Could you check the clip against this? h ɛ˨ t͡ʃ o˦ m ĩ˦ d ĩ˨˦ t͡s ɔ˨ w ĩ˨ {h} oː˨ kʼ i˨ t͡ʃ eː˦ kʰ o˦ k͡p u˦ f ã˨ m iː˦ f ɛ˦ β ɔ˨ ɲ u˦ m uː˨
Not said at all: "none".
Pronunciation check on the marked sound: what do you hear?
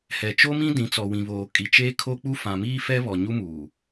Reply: β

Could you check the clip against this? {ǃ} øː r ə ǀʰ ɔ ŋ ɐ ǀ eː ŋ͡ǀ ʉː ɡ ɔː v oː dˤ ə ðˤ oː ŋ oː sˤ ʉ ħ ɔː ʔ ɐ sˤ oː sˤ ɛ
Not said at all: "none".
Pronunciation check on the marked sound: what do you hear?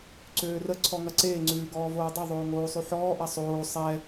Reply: ǀ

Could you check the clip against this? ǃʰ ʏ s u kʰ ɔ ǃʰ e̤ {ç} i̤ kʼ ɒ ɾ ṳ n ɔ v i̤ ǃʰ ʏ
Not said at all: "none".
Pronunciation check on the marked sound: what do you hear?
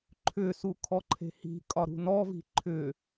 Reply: h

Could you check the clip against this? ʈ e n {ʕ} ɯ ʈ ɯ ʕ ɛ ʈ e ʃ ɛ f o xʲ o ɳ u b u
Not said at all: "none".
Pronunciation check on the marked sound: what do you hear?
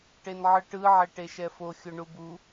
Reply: ʕ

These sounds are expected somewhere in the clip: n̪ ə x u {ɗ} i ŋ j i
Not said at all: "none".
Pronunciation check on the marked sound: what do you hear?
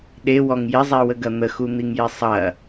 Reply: n̪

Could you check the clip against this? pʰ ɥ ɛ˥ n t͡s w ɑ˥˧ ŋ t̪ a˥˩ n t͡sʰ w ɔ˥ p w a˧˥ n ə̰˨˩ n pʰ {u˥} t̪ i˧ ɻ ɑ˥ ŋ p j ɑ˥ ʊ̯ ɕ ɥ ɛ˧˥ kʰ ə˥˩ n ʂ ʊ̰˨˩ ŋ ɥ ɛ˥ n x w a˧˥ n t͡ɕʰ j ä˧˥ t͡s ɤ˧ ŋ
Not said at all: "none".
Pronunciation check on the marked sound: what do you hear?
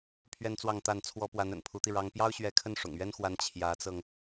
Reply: u˧˥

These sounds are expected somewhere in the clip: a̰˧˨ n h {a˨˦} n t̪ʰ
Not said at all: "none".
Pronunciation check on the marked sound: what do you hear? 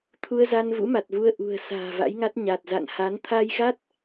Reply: a˨˦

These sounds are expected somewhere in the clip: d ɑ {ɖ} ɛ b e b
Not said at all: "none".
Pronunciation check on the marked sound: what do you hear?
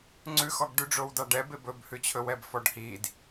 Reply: ɖ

